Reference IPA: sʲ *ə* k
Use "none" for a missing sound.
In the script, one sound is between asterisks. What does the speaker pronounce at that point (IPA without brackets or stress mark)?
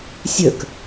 ə